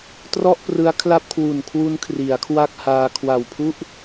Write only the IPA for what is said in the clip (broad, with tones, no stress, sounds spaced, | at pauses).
t r ɔ˥˩ ʔ p r ɯ˦˥ a̯ kʰ l a˥˩ p̚ kʰ w u˨˩ n kʰ w u˦˥ n kʰ r i˩˦ a̯ kʰ w a˥˩ k̚ h aː˧ kʰ w a˨˩ w pʰ u˥˩ ʔ